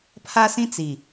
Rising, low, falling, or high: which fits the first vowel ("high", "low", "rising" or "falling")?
high